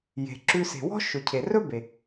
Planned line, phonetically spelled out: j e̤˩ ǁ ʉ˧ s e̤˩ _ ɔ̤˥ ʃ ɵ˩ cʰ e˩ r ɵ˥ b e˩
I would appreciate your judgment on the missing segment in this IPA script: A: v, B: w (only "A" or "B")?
B